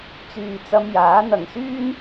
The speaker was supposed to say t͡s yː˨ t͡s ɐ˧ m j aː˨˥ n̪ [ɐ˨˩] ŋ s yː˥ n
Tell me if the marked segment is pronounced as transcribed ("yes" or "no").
no